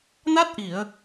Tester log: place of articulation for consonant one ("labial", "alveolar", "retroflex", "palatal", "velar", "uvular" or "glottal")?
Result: alveolar